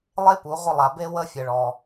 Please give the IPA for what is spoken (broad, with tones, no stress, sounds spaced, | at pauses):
lˠ e˦ p u˨˦ ʁʷ ə˦ lˠ a˧ b e˦ w ə˦ fʲ ə˧ ɭ ɔ˧